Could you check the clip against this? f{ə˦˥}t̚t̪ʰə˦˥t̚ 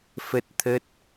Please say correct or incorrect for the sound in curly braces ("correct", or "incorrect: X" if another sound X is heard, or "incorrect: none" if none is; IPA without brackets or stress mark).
correct